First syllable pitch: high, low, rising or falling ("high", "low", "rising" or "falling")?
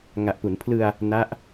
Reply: low